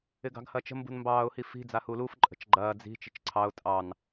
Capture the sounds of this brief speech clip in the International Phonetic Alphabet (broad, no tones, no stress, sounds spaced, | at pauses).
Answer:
ɪ ɡ ɑ̤ ɡ h ɐ t͡ʃ ə̤ m b ṳ n m b ɑː ʊ̯ h i f i̤ d͡z a h u l u f ǃʼ ə̤ t͡ʃ ɡ͡ǃ ɐː d͡z i̤ t͡ʃ ɪ t͡ʃ ǀʰ ɑ ʊ̯ tʼ ɑ n